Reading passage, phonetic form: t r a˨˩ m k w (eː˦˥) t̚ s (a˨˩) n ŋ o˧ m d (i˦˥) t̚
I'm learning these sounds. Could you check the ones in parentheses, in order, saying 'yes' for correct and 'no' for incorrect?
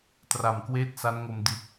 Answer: no, no, no

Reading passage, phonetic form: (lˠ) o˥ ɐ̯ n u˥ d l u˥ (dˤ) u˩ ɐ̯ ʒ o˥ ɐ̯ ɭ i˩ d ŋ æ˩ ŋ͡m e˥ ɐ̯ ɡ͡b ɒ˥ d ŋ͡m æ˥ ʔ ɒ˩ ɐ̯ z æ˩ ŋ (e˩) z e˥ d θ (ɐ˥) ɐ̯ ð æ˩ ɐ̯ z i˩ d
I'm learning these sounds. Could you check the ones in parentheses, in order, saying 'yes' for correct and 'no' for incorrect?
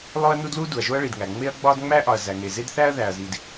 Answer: yes, no, yes, no

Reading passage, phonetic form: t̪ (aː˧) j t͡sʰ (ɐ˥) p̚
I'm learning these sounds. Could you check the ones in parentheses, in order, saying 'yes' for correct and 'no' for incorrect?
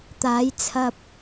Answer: no, no

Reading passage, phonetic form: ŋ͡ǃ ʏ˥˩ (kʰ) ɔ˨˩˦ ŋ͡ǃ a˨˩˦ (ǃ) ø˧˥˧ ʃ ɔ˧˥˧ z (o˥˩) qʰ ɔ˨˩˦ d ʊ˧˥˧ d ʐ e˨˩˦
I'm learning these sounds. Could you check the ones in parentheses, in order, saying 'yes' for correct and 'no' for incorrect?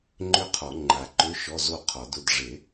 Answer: no, yes, yes

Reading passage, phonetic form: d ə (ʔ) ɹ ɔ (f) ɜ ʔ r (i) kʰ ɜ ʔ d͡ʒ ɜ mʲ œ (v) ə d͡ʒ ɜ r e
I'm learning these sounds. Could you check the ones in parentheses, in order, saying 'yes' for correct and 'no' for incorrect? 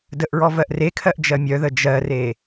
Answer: yes, no, no, no

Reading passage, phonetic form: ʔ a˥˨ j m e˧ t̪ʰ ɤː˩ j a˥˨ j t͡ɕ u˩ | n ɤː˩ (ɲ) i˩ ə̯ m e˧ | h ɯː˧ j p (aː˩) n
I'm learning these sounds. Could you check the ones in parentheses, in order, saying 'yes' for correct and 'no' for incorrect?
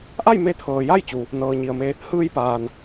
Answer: yes, yes

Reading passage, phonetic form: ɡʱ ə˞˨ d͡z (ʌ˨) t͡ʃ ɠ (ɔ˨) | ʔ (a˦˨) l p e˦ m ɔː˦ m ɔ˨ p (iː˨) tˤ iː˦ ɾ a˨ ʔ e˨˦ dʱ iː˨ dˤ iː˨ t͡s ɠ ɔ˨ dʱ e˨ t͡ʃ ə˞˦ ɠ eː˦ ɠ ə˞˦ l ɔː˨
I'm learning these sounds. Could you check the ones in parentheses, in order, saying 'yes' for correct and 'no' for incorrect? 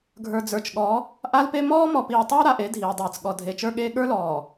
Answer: no, no, no, yes

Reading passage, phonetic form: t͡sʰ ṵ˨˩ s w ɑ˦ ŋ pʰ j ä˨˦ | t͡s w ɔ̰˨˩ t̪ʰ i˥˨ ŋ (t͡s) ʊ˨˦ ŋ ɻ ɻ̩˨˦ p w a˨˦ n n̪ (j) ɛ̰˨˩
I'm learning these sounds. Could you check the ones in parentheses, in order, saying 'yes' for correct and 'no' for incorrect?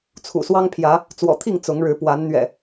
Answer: yes, no

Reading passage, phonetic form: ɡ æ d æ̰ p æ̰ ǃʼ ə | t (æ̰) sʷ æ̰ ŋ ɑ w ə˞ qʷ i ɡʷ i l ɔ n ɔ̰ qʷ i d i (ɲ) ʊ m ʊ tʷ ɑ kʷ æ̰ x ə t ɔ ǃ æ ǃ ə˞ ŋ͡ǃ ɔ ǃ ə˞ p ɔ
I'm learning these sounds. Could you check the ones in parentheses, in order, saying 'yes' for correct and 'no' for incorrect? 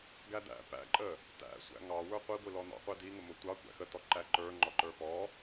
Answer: yes, no

